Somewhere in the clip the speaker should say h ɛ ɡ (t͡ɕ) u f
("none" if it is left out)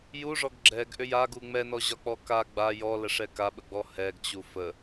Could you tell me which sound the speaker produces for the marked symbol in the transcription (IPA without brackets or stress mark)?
t͡ɕ